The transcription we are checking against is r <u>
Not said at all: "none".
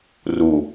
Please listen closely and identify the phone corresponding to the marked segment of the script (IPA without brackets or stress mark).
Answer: u